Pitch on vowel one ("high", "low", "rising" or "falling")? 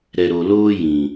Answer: low